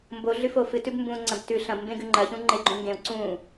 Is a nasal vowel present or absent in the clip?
present